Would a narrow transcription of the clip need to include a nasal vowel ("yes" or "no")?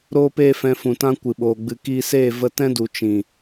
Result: yes